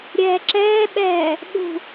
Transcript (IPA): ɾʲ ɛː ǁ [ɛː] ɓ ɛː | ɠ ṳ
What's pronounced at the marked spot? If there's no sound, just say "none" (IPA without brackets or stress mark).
ɛː